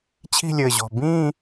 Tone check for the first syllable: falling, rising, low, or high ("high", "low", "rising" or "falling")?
falling